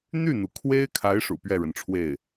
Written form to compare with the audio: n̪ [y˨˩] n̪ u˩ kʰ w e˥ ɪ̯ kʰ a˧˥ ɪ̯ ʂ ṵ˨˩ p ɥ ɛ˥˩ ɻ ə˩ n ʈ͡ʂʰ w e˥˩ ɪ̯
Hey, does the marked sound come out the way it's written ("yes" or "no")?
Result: no